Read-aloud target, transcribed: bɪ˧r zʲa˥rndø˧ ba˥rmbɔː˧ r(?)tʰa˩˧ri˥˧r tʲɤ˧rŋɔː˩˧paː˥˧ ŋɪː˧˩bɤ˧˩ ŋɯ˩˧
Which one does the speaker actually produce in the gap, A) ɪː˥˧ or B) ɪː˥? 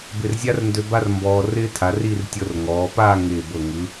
B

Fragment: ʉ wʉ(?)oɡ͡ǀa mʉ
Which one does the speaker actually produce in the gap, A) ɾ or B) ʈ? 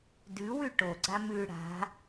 B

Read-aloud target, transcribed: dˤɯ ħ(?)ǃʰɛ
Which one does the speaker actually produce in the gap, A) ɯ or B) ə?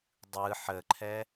B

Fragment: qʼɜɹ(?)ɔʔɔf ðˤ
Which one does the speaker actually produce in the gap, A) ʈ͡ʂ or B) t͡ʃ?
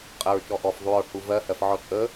B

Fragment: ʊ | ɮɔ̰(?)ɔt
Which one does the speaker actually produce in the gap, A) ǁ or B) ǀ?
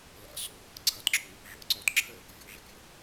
B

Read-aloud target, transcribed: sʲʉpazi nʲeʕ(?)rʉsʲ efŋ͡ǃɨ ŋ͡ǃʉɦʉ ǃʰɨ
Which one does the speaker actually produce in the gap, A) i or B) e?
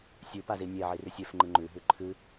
A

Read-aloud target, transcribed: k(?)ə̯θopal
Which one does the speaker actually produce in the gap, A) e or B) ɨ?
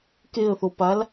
A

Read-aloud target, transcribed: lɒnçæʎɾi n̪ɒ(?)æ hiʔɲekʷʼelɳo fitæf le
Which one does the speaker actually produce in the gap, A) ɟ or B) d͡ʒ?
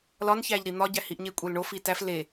A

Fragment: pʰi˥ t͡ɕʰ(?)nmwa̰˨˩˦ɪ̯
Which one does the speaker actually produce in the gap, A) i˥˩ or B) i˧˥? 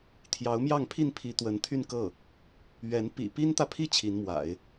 B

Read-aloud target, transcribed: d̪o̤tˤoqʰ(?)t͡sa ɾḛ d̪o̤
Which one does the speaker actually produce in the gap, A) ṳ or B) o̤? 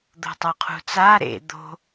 A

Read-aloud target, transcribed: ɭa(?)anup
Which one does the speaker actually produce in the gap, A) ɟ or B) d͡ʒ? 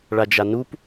B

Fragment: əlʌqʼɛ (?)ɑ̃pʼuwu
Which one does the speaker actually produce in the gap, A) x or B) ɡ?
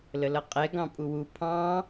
B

